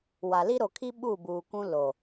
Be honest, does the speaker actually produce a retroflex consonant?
no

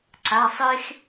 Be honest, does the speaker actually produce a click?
yes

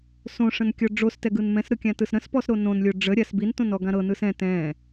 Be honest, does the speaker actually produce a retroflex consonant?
yes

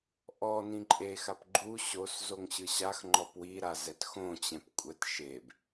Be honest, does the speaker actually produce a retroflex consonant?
no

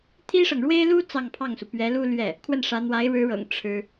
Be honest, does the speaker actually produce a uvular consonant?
no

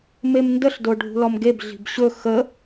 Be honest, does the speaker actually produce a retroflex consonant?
yes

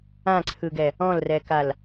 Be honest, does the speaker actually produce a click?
yes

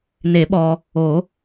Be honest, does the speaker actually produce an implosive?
yes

